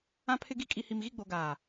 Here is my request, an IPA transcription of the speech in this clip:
ã˦pʰɪ˦ɡi˦ kʼi˨hi˨mɣi˦˨ɡ͡bo˨ ɡaː˨

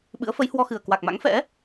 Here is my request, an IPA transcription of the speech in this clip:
ɓɨ̰˧˥ə̯fə˨˦jhwɔ˧xɨ˨˩ə̯ kwa˨˩k̚ma̰˧˥ŋfɛ̰˧˥

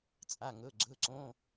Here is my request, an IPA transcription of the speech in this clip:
t͡sʼa˩˧˩ŋɵ˩˧˩ ɡ͡ǀɵ˩˧˩ǀõ˩˧˩

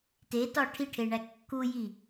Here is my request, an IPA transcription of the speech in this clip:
tetɒ ʈʰiʈʰeɳæ kːuji

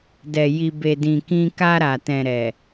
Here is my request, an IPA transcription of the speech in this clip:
dɛ˨ ji˨be˨dĩ˨kĩ˧ ka˧ɾa˨tɛ̃˨ ɾɛ˨

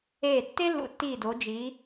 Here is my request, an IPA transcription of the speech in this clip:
eː˧˩tːe˥lːṵ˧ tːiː˧˩do˩˧d͡ʒi˩˧

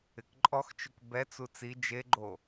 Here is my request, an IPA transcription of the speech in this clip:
ɪkǃʼɔxt͡ʃʊk bɛt͡su t͡si d͡ʒeɡ͡ǃo

